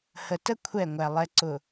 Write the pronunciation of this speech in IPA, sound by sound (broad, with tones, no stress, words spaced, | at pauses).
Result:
hə˨tə˦ kʷʰɛ˦˨ŋʷæ˨ lˠɛ˨ǀʊ˨